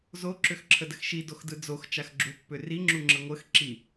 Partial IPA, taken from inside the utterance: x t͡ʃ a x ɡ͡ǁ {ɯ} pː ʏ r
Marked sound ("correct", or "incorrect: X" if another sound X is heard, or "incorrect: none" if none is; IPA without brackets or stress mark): incorrect: u